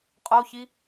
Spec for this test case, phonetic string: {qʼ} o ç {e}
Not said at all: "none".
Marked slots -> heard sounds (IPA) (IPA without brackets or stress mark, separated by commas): qʼ, i